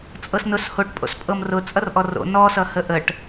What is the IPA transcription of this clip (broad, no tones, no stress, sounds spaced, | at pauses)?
t͡sʼ ɤ s n ʊ s h o ʈ pʼ o̰ s pʼ ɤ m r ʊ t͡sʼ ʌ r ʔ ɔ r o̰ n ɔ s ʌ h ə ʔ ə ʈ